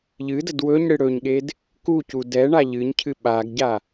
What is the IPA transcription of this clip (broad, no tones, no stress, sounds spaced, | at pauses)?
ʎ ɨ d ə d w ɵ ɲ ɽ ɨ ɽ ɵ ɲ ɠ e d | k u c u d ɛ ɳ a ʎ ɨ ɲ cʰ ɨ ɓ a ɡ ɟ a